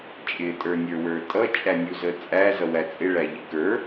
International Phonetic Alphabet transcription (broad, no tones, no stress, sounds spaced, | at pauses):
t͡ʃʼ ɪ tʼ ə˞ nʲ ə˞ w ə˞ tʼ ʌ t͡ʃʼ æ nʲ u z ə t͡sʼ æ z ʌ w æ t͡sʼ ɪ ɭ æ ʎ ɪ k ə˞